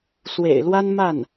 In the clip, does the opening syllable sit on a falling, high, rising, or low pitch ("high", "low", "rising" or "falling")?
low